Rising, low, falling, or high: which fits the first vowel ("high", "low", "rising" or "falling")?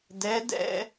rising